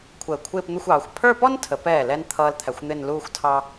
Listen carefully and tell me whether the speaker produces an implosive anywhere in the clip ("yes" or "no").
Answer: no